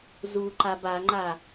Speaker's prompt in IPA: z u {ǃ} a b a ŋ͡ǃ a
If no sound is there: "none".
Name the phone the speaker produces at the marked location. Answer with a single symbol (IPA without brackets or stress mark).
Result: ǃ